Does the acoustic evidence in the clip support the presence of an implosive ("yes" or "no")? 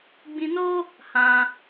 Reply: no